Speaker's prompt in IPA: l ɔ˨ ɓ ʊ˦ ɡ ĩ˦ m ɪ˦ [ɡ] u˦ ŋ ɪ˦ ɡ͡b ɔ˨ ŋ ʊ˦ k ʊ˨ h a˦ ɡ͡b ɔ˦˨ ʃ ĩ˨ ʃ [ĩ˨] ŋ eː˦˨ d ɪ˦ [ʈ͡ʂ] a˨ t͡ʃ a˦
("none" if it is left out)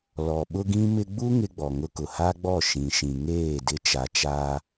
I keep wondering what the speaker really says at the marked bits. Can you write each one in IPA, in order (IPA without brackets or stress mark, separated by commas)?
ɡ͡b, ĩ˨, t͡ʃ